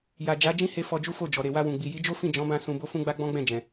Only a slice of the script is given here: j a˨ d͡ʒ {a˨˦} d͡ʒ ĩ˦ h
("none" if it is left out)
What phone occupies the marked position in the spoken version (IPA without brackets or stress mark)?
a˨˦